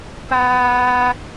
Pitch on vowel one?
high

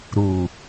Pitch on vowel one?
low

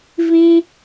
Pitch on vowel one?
high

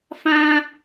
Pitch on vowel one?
high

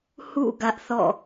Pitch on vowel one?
falling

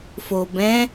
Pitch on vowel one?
low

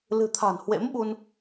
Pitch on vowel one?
low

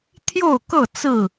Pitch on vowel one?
falling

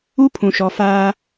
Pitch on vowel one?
high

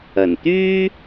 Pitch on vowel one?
low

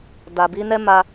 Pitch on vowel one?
low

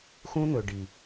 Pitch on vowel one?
high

